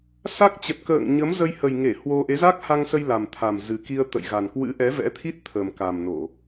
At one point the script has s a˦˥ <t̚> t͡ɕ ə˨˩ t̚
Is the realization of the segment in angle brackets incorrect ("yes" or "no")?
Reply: yes